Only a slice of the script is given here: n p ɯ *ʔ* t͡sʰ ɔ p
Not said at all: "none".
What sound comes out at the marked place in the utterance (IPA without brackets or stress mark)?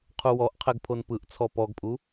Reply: ʔ